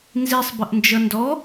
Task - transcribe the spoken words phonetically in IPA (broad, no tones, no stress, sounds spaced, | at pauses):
n z i sˤ b ə ʔ n d͡ʒ ʌ n d ɔ